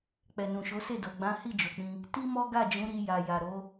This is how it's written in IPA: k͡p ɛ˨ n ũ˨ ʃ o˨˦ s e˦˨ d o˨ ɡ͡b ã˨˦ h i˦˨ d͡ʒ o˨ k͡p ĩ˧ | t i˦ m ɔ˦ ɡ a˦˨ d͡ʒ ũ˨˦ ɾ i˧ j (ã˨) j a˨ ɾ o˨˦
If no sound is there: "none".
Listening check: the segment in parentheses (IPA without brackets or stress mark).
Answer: a˨